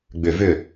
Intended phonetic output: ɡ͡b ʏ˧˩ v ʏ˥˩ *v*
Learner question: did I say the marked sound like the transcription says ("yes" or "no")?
no